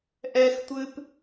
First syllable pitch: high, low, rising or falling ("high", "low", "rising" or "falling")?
high